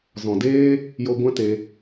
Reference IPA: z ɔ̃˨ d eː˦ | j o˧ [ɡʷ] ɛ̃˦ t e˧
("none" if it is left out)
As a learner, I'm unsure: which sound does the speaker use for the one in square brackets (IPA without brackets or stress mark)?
ɡʷ